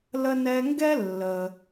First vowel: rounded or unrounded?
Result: unrounded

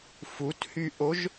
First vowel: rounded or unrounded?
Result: rounded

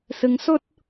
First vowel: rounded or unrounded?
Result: unrounded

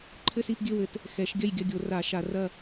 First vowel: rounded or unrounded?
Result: unrounded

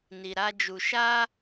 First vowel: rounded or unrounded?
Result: unrounded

